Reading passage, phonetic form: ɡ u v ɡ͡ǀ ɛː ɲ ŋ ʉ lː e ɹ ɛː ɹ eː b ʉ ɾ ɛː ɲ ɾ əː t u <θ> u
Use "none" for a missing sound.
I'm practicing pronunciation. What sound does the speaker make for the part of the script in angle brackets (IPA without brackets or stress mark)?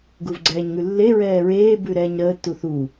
θ